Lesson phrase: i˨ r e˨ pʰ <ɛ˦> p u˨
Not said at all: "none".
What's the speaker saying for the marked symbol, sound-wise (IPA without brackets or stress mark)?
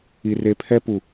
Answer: ɛ˦